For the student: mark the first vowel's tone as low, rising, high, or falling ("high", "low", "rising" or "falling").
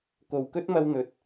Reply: low